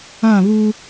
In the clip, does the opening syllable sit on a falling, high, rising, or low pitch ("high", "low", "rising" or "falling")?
falling